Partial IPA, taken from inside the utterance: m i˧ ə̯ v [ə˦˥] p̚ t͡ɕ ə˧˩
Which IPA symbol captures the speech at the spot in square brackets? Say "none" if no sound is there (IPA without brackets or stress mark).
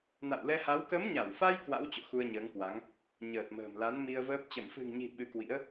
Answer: əː˦˥